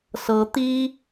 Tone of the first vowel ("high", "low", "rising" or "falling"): low